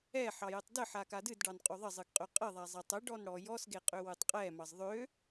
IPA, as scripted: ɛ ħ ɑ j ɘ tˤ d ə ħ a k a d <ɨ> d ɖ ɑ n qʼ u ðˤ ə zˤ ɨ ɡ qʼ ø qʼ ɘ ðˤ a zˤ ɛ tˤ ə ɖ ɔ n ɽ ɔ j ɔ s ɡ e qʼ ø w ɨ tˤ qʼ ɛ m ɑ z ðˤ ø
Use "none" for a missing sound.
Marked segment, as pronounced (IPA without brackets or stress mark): ɨ